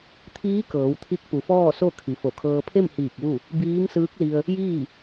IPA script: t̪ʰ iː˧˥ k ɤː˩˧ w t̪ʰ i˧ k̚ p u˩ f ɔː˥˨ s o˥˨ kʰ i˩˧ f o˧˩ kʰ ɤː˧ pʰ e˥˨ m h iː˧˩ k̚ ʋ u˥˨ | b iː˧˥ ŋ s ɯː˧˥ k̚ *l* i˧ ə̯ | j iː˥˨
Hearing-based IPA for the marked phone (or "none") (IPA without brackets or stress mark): l